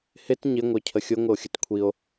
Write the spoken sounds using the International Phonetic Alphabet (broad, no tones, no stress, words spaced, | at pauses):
hɪt ɲɪ ŋʷə˞cʰəxʲʊ ŋʷɪo̯xʲətkʷʰio̯